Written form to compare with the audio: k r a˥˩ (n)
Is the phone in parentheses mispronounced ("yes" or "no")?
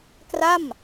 yes